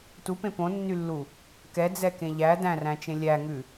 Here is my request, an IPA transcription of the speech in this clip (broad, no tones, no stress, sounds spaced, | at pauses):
t u p ẽ p õ nː y lː u | k ɛ d͡z ɛ k ẽ ʎ æ d æ̃ r æ̃ t͡ʃ ẽ lʲ æ ŋ ʉ